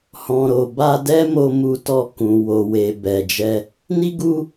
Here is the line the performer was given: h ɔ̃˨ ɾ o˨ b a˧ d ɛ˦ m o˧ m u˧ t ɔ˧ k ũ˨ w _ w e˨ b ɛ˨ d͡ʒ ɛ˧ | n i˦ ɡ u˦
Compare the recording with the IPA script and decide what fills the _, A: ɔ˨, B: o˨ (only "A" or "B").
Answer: B